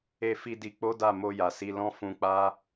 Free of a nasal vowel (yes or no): no